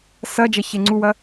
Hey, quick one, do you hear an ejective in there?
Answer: no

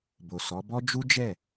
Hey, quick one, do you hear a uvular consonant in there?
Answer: no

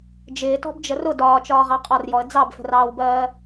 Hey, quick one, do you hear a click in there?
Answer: no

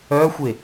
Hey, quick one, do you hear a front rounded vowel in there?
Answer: yes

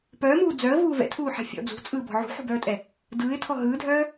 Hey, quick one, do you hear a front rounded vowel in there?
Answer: yes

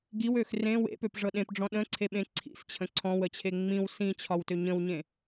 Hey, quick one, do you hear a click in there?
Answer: yes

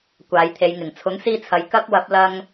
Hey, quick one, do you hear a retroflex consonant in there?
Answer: no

